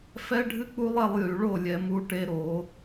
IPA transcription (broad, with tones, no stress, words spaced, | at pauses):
fɛ˦ɖʱɨ˦k͡pu˦lˠɛ˧lˠ jy˨ɭo˦˨ lʲɛ˨mu˧ ʈe˦ɾo˨˦